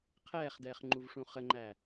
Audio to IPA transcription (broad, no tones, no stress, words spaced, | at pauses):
qʰɛːχdɛːχŋ͡ǃuvʂũ χəŋ͡ǃæ